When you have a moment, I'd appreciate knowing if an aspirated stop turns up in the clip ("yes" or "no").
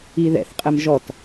no